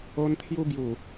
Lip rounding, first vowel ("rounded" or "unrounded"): rounded